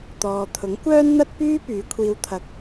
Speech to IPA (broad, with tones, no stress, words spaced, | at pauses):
t̪ɔː˨t̪ʰʊ˨˥ŋ kʷœː˥nn̪ɐ˥t̚pyː˥ pyː˨˧kʷʰiː˧wt̪ʰɐ˧k̚